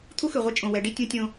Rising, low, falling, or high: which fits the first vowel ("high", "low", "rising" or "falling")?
high